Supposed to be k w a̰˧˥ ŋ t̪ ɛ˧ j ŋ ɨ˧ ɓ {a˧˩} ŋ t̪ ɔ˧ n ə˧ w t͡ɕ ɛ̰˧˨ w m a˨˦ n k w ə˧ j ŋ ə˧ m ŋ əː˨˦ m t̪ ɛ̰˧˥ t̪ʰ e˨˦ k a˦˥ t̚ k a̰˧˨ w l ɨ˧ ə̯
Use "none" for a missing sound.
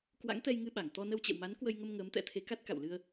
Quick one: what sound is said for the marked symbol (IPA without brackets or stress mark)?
a˧˩